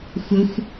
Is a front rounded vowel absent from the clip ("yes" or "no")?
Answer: yes